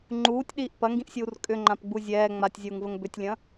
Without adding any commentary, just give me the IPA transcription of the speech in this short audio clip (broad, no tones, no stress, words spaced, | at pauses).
ŋ͡ǃuːtʲɗiːʔ pɐŋɡĩʔsʲuːr kʼʏŋ͡ǃãpɡ͡bu zʲɛː ŋ͡matʲzʲuːŋvəŋ bʏtʲlʲɐ̃